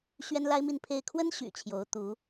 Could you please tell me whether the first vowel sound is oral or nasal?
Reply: oral